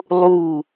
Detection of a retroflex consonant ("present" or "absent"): absent